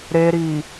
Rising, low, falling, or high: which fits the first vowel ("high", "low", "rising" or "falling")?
low